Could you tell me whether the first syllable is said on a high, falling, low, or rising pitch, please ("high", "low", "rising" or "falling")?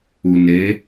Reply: low